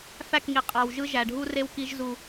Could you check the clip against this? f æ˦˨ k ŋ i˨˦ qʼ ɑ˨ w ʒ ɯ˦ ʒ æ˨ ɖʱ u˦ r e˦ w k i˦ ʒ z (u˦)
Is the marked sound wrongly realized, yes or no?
no